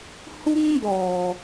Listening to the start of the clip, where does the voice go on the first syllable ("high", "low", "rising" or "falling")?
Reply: high